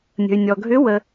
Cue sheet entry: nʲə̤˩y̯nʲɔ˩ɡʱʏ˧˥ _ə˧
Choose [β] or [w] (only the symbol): w